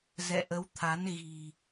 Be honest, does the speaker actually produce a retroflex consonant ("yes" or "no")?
no